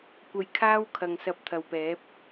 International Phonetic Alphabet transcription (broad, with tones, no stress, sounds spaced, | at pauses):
kʷ ɐ˧ j kʰ aː˥ w kʰ ɐ˨ ŋ s ɐ˨˥ p̚ t̪ʰ ɐ˨ w p ɛː˨˥ p̚